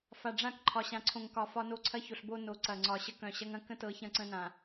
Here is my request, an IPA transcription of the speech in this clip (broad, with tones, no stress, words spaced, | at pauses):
fa˨ɖ͡ʐã˦˨kǃʰɒ˨ ɕã˨ǀʰõ˨ŋkɒ˨ fɒ˦no˦ǀʰɐ˦ço˨ɬ bo˦no˨˦ ǀɐ˨ŋ͡ǀɒ˨ ɕə˦kœ̃˨ɕɐ˦ŋɐ̃˦ kə̃˦tɤ˨˦ çɐ̃˦ǀə̃˦nã˨